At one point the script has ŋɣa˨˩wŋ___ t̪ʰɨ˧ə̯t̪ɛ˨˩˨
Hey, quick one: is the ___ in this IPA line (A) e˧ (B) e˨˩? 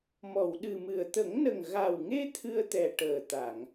A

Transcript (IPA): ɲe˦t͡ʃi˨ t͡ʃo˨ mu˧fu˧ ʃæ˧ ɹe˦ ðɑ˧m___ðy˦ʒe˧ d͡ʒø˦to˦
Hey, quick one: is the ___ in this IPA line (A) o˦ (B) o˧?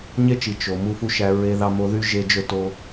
B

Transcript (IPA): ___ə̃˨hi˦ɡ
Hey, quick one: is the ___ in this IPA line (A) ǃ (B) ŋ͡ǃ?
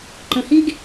A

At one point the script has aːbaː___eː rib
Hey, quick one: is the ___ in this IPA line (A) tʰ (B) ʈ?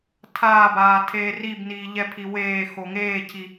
A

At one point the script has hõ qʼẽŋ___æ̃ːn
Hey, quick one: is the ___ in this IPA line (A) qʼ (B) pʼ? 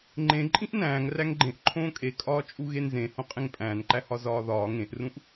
B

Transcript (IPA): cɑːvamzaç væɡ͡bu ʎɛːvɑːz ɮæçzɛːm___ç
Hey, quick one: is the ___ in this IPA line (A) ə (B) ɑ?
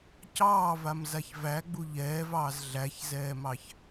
B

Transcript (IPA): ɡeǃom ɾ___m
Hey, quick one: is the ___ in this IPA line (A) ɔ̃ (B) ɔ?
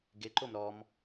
B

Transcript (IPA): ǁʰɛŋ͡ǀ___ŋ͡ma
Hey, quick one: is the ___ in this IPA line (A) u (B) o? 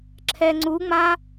A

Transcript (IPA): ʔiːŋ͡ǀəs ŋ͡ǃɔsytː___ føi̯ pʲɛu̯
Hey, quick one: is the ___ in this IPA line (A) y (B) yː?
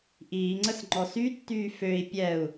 B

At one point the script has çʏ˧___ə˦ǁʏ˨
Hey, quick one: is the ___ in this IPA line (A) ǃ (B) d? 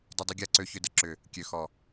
B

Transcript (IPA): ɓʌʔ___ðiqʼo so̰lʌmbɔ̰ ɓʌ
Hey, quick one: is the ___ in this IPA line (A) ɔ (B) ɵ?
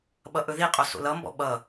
B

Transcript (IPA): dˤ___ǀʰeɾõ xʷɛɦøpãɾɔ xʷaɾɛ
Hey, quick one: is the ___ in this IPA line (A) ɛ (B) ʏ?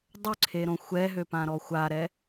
B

